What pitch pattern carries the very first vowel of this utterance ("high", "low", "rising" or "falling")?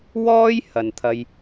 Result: high